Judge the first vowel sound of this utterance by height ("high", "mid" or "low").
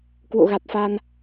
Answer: mid